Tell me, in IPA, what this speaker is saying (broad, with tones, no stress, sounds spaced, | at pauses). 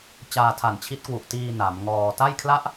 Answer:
t͡ɕ aː˧ tʰ a˨˩ n t͡ɕʰ i˦˥ t̚ k w u˨˩ ʔ t iː˧ n a˩˦ m ŋ ɔː˧ t a˥˩ j kʰ l a˦˥ ʔ